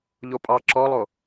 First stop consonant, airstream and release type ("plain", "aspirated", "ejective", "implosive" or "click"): ejective